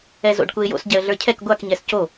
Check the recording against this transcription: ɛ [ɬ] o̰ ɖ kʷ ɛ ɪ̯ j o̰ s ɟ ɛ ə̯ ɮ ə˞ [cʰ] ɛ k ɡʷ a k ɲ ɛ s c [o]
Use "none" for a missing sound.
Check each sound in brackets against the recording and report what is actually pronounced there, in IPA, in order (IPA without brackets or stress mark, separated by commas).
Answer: z, cʰ, o